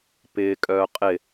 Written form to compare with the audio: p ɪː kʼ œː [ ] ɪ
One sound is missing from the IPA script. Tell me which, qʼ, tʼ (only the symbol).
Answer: qʼ